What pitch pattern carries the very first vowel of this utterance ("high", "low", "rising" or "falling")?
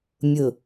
low